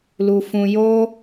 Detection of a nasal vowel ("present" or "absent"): present